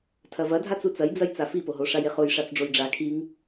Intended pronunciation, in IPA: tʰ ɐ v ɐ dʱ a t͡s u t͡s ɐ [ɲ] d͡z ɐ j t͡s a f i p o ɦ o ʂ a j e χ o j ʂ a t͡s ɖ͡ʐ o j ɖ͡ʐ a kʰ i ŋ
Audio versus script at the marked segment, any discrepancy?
yes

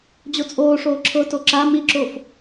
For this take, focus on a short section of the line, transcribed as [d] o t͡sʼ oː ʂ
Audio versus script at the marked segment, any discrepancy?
yes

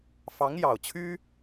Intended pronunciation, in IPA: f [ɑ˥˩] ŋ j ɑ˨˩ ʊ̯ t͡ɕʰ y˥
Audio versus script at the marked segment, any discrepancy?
yes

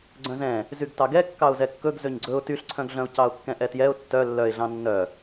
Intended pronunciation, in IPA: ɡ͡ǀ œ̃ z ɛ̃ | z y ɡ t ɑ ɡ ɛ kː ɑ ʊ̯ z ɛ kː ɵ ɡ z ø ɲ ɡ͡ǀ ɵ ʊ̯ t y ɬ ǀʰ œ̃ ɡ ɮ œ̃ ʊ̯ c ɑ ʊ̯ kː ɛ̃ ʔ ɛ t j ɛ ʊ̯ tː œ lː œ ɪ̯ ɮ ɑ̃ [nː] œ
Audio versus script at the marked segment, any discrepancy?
no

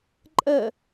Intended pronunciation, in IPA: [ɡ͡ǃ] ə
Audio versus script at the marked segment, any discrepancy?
yes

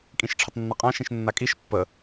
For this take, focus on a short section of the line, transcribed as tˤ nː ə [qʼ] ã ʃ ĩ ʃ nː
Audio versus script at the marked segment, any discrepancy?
no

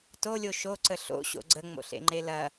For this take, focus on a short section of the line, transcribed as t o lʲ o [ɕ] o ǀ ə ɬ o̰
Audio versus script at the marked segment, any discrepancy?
yes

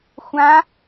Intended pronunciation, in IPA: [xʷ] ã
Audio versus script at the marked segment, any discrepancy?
no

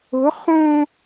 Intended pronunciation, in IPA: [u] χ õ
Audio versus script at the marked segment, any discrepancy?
yes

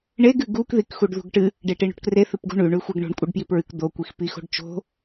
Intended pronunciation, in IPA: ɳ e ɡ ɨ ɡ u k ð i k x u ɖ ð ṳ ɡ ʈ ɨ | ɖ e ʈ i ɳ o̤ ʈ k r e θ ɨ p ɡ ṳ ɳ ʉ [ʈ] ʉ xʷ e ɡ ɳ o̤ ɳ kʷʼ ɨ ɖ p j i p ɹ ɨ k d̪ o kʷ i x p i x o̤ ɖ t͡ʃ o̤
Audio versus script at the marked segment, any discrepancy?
yes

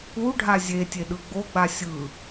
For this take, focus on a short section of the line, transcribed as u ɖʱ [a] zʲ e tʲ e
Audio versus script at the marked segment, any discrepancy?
no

